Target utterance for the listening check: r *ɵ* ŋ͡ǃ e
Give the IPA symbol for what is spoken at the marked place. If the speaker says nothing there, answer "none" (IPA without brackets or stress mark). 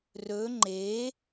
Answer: ɵ